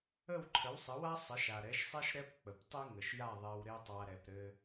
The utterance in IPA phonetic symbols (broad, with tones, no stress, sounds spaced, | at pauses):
ə˥˩ w ǃʰ ə˩˥ w sˤ ə˩˥ w a˥ sˤ ɘ˩˥ ʃ a˩ ɾ ɛ˩˥ ʃ sˤ ɛ˥ ʃ ɾ ɛ˥ p k͡p ə˩ p tˤ e˥ ŋ ə˩ ʃ j a˥˩ ðˤ ɛ˧ w ɾ e˥ tˤ a˧ ɾ ɛ˩ p ɾ ɘ˧